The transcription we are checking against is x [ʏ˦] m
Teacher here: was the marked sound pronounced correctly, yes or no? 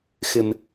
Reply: no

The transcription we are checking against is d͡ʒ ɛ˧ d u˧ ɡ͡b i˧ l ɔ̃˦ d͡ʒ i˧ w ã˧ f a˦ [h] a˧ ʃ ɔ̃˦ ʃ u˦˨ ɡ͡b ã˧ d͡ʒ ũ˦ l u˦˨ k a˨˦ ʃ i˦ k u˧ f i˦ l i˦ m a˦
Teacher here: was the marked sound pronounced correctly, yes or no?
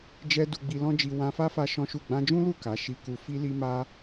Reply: no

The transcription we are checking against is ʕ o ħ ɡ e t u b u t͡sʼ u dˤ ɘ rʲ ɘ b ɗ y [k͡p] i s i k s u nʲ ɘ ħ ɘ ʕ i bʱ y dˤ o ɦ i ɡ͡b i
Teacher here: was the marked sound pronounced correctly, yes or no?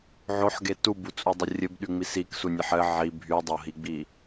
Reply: no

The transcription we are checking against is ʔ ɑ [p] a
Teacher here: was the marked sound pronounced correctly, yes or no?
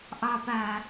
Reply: yes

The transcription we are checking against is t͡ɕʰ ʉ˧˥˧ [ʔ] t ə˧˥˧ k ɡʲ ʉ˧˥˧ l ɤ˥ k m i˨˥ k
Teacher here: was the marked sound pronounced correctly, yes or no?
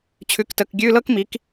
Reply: no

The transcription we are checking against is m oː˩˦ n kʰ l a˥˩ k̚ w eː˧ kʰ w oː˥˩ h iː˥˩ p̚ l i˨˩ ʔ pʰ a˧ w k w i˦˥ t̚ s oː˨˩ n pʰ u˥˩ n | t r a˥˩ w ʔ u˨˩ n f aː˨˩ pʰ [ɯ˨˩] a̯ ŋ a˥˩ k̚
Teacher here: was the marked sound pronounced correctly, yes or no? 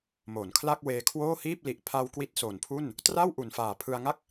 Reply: no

